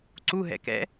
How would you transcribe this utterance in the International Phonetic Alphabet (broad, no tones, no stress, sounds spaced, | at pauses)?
ǀ u ɦ ɛ̰ k ɛ̰